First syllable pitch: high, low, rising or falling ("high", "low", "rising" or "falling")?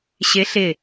rising